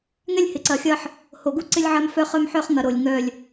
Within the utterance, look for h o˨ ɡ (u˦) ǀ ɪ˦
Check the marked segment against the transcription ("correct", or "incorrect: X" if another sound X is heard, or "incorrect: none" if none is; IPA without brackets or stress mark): correct